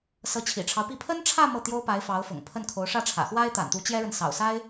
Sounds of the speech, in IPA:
sɤ˧˥t͡ɕʰḭ˨˩ʈ͡ʂʰɑ˦ʊ̯pi˥˩ pʰə˥nʈ͡ʂʰä˥˧ mɤ˥˩t̪jo˥ʊ̯pa˧˥ɪ̯ fɑ˧˥ʊ̯fʊ̰˨˩ŋpʰə˥˩nkʰo˧˥ʊ̯ ʂä˥˩ʈ͡ʂʰä̰˨˩ xwa˥ɪ̯t̪a̰˨˩nt̪u˧˥ t͡ɕjɛ˥ɻə˨n sɑ̰˨˩ʊ̯sa˥ɪ̯

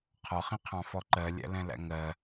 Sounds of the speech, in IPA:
qʰɒχĩqʰɑ̃fɔ ǃɜlʲæ̰lɛ̃læ̰ ŋɜ

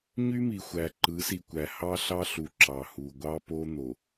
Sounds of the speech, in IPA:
ɲy˦mi˨xʷæ˨ ǃɯ˨˦si˨kʷæ˨ hɑ˦ɬɑ˦ɬu˨ ǁɑ˨hu˨ ɡʷɑ˦po˦ n̪o˨

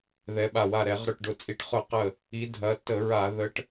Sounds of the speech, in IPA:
ðɛ˨˦ɓa˧˩ wa˧˩ɾɛ˧˩˧ʁɾʊ˧˩ʈ ɖʊ˧˩˧t͡sʼi˧˩ʈ χʊ˧˩˧qə˧˩ | i˨˦dʱɐ˨˦tːə˧˩˧ɹa˧˩˧ ðə˨˦ʈ

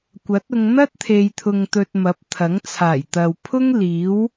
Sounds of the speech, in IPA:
kʷɐ˨˥t̚ʊ˧ŋ n̪ɐ˥t̚t̪ʰe˨jt̪ʰʊ˨ŋ t̪ɵ˨t̚ mɐ˨˥p̚t̪ʰɐ˨˥ŋ t͡sʰaː˨˩jt̪ɐ˨wpʰʊ˥ŋ liː˨˥w

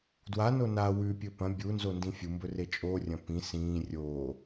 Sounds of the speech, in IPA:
dwa nona wʉ pʲɵpɐ̃ bʲunzondĩ fʲumbɵ ret͡ʃʼo rʲɐ̃pĩ sĩː rʲo

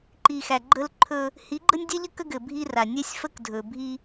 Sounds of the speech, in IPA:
ǃi˨xæ˨ ɡ͡ǃə˦lǃʰɵ˦ | hi˨˦ɡ͡ǃə˦nʲdʲɛ˦ʎə˦ kə˦ɡɘ˨bʱi˦ra˨ nʲɛ˦sʲfə˦kdʱɵ˨bʱi˦

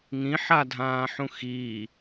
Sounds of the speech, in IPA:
ŋĩħadʱãːħũ xi

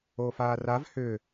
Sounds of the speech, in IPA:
oːfaːrav hʏː

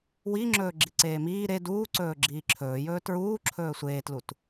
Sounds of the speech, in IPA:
wiŋ͡ǁɵː ɡ͡ǁiǀeːmiː ɾe duːǀɵː ɡ͡ǁiːǁʰɵːjɵː tɹuː ǁʰɵːsʷeːtlut

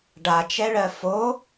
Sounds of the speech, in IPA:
ɖat͡ʃɛɭɜ fo

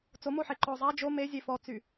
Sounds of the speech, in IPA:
t͡somoħe ǃɔ zˤa d͡ʒo mezʲe fɔt͡sy

